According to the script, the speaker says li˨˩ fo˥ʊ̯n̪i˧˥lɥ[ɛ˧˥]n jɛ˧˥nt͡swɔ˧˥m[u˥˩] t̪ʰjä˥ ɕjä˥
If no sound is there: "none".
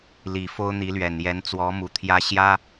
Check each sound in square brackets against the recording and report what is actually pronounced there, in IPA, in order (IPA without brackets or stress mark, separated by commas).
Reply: ɛ˨˩, u˨˩